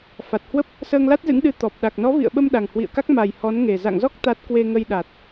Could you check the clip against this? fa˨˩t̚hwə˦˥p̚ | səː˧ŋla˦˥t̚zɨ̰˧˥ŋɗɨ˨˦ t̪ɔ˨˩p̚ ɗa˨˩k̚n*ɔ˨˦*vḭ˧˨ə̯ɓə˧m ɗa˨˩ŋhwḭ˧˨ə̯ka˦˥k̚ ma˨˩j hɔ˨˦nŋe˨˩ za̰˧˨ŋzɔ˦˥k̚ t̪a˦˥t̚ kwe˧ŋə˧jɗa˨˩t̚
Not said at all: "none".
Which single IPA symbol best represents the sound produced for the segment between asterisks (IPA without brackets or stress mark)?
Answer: ɔ˨˦